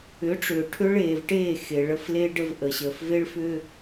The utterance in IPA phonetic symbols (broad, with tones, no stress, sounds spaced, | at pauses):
ʏ˨˦ ʈ͡ʂ ʏː˨ ʈʰ ʏ˦ ɭ eː˨ v ʈ eː˦˨ x e˨ ɭ ə˦ f l e˦ ɖ ə˦ v ʔ ə˨ ɕ əː˨ f v e˦ ɭ f ʏː˦